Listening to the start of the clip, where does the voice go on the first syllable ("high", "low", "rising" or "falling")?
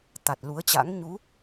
low